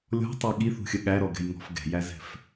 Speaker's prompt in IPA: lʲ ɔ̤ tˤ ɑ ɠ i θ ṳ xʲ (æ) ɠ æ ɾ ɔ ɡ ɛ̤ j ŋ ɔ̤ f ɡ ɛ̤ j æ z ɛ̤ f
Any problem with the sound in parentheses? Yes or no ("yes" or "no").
yes